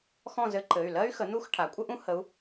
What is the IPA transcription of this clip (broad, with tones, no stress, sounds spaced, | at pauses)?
x ɔ̃˥˨ z ɘ˧˥ ǃ ɘ˩˧˩ y̯ l ɜ˥ y̯ x ə˩˥ n̪ u˥˨ x ʈʰ a˩˥ kʷʼ ə˥ ʔ ũ˥ h ə˧˥ u̯